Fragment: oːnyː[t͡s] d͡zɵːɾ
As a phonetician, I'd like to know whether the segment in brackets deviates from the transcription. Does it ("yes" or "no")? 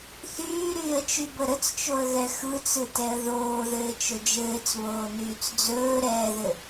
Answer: no